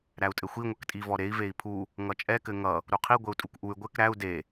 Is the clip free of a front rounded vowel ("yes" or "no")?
no